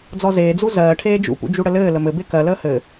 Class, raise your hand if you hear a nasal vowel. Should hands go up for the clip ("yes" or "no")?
no